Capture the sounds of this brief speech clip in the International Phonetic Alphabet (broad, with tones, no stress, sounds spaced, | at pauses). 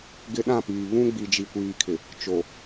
ɡ ɪ˦ ɗ ã˦˨ p iː˨ β ũ˦ ɡ͡b i˨ d͡ʒ i˨ kʷ iː˨ kʰ ɪ˨ | t͡ʃ o˨